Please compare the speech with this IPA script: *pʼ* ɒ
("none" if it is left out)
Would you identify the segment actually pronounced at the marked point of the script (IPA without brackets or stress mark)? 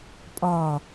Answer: pʼ